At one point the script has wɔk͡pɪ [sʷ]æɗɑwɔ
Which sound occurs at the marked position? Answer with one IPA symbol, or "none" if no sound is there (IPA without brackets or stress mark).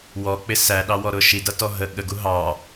s